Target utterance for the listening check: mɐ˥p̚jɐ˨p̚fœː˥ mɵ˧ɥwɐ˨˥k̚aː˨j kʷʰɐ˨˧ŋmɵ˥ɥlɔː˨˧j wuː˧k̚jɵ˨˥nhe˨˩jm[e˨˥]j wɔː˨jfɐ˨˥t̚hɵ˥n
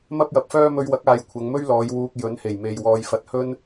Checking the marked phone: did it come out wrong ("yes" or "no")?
yes